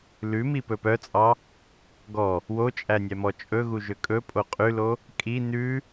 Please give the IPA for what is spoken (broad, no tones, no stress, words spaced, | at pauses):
lʉmi pɵpœt͡sʼɑ | ɡɔ | wot͡ʃʼæ nʲæmɔt͡ʃʼɵɣu ʒøkʼɵpʼo qʼʉlo | kʼi nʉ